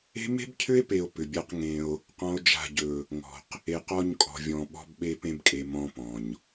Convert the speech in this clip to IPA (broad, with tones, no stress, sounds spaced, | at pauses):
e̤˦ m e̤˦ b cʰ ʏ˦ e̯ p e˨ o̯ p ʏ˨ bʲ a˦ q ŋ ẽ˦ o̯ | q ɔ̃˦ o̯ d͡ʒ a̤˦˨ ɟ ɵ˦˨ | ŋ ɔ̤˨ q | e˨ q ɔ˦˨ ɲ kʼ ɔ̤˨ vʲ ɔ̃˨ ɓ ɔ̤˦ b ɓ e˦ p ẽ˦ b kʼ e˨ m ɔ̃˦ p ɔ̃˨ ɲ